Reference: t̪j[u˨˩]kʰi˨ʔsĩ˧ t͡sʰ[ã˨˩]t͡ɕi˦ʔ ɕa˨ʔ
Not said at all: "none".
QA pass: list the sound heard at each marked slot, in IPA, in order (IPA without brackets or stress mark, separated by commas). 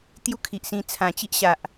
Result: u˦, ã˨˩